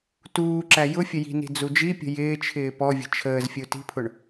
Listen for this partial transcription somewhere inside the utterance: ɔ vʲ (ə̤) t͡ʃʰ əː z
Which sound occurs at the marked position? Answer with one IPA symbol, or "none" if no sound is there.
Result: ə̤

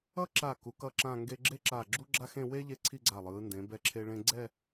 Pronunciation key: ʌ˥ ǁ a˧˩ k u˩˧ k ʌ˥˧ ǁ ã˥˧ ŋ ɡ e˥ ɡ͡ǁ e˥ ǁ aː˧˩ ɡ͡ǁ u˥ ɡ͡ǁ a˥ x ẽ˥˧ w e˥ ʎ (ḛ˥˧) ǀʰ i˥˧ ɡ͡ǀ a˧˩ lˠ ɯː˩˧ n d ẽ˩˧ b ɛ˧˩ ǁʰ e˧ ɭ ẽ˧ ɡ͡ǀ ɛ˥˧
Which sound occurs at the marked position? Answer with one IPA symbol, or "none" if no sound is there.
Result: e˥˧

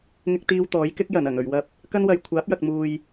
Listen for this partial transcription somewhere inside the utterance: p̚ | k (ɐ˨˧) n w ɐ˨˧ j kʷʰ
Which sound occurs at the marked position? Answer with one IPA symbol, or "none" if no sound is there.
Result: ɐ˥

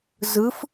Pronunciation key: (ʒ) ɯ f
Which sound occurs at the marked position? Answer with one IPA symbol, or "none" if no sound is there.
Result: z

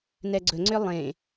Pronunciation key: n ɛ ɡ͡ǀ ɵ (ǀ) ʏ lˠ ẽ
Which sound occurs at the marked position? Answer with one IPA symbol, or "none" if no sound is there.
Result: ŋ͡ǀ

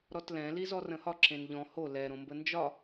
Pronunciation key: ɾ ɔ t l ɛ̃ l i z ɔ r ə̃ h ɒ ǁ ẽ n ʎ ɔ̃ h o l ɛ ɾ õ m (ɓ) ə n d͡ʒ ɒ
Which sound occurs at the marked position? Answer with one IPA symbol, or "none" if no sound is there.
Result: b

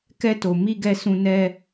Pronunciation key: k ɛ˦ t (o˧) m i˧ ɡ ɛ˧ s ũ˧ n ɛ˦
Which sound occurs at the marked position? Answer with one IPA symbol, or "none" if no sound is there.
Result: o˧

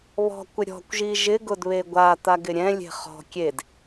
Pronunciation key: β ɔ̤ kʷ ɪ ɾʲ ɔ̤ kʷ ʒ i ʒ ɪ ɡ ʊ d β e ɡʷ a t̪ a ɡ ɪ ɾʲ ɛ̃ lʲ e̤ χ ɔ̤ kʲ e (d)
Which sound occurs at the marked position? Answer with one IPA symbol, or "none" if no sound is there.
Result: d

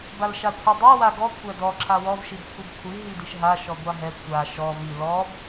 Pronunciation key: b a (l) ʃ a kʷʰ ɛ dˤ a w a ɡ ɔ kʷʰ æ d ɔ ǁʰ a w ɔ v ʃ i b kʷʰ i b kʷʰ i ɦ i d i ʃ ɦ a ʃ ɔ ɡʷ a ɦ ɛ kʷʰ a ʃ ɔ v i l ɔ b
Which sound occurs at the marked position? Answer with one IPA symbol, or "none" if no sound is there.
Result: l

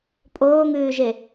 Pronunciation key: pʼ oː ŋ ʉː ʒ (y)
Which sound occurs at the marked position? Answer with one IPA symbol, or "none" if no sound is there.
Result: e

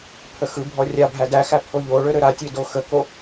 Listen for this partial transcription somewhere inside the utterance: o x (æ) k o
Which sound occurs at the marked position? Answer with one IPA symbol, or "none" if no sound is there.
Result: ə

